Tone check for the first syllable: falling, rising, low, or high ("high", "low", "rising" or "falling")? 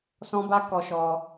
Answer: high